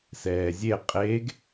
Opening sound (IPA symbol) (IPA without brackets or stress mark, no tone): s